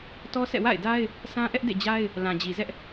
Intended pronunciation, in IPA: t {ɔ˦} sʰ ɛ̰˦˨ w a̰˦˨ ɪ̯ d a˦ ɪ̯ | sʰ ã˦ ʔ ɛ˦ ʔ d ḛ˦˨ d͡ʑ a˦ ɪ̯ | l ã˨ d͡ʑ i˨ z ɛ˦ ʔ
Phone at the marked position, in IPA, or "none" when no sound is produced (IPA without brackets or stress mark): ɔ˦